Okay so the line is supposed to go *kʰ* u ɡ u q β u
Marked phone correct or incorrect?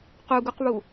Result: incorrect